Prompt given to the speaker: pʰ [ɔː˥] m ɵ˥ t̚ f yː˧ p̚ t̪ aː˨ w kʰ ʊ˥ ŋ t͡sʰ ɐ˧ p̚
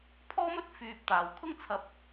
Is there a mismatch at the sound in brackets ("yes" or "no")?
no